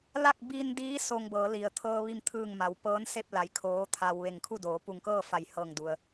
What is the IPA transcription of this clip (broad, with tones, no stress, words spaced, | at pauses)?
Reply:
la˥˨k̚biː˧ndiː˧˥ so˧ŋ bɤː˩˧li˩ə̯t̪ʰɤː˧ ʋi˥˨mt̪ʰɯː˥˨ŋma˩˧w pɤː˧˥n se˥˨p̚la˩˧j kʰoː˧˥t̪ʰa˧w ʋe˧˩ŋkʰu˥˨doː˩˧ pu˧˩ŋkɤː˥˨ fa˧˩jhɤː˧˩ŋdu˩ə̯